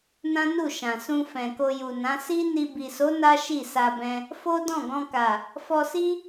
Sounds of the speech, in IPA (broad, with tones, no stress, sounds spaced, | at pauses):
n ã˦ n u˦˨ ʃ ã˨ s ũ˧ f ɛ̃˨ k o˧ j u˨ n ã˨˦ s i˦ n i˧ b i˨ s o˨˦ n a˦ ʃ i˦˨ s a˧ b ɛ̃˧ | f o˦ d ɔ̃˦˨ ɡ ɔ̃˧ k a˨ | f ɔ˧ s i˦